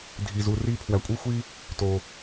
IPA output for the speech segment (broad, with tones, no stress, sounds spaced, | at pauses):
dʱ i˧ z u˧ r i˥ pʰ w æ˧ kʷʼ ɯ˥ xʷ i˥ | t o˧